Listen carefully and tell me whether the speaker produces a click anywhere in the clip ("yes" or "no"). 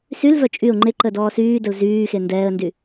yes